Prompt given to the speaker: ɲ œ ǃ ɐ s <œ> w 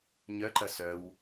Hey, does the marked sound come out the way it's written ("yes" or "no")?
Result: yes